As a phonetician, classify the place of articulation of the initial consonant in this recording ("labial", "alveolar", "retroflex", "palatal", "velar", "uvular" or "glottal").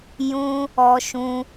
palatal